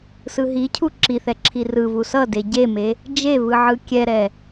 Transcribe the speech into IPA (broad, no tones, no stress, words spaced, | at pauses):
sɯɦicʰu ǁiθɛ ǁʰirɯvu sʌ deɟeme | d͡ʒevɯ ʕɯkʲɛɾɛ